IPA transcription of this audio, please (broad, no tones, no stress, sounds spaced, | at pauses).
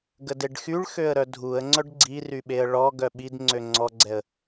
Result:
ɡ ə d e ɖ x y ɭ x ø ə̯ ɾ œ dʱ u ə̯ ŋ͡ǀ œ ɖ ɡ͡ǀ i r y ɓ e ə̯ ɭ ɔ ɡ œ ɓ i d ŋ͡ǀ ø ŋ͡ǀ ɔ ɡ͡ǀ ɛ ə̯